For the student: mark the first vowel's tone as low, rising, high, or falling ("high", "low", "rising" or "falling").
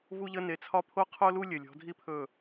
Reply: high